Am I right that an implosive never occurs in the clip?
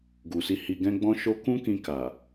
yes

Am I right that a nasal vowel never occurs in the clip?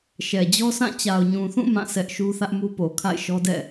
no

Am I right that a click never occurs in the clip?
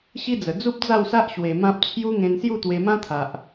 yes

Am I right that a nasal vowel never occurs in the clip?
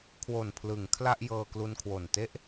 yes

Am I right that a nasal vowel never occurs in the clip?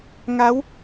yes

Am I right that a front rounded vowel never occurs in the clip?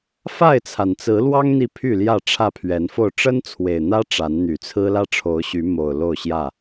no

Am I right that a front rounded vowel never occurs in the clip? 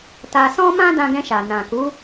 yes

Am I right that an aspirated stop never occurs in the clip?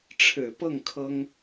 no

